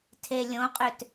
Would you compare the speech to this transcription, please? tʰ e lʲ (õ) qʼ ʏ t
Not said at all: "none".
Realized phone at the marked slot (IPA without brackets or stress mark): õ